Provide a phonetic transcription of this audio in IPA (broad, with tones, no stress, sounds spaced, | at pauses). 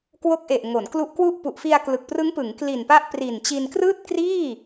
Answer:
k w o˦˥ k̚ ʔ e˨˩ ʔ ŋ o˩˦ n k l u˦˥ ʔ k w u˥˩ ʔ p u˨˩ ʔ f i˧ a̯ k l ɯ˨˩ k̚ p r ɯ˦˥ ŋ p ɯ˩˦ ŋ k l i˨˩ n p a˦˥ ʔ p r i˨˩ n t͡ɕ i˧ n k r ɯː˥˩ t̚ k r iː˥˩